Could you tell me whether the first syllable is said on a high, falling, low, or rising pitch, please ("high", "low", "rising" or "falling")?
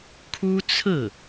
high